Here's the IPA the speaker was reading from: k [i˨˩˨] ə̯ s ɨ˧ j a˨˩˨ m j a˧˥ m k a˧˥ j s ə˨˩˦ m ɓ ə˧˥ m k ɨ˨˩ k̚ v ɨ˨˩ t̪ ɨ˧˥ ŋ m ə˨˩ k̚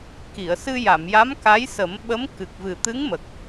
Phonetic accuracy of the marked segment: correct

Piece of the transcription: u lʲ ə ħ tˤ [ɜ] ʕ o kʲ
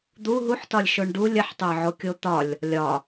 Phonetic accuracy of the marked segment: incorrect: ə˞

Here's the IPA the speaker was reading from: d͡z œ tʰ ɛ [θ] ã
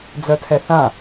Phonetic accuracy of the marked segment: correct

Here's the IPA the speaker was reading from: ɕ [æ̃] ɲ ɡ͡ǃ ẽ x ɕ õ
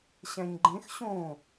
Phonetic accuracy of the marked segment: correct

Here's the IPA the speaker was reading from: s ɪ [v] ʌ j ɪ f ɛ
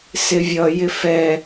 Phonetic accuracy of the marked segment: incorrect: vʲ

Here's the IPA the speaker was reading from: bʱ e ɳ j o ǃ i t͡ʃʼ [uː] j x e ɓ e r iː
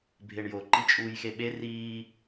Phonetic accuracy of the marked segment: correct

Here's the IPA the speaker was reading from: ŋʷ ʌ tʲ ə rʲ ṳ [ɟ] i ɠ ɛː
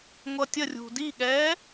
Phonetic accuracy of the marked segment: incorrect: d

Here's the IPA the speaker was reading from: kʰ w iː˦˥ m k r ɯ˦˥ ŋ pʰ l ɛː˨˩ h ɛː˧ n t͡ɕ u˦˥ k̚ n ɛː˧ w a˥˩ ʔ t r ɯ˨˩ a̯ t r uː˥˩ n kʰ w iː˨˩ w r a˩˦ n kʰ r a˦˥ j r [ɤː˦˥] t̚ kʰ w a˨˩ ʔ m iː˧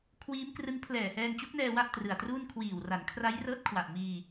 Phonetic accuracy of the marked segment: correct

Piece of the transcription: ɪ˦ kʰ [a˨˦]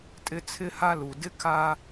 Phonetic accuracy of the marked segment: incorrect: a˦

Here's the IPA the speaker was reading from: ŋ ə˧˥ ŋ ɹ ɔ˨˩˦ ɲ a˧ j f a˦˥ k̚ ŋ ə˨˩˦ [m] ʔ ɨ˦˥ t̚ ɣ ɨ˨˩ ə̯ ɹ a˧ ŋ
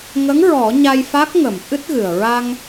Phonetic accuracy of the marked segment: correct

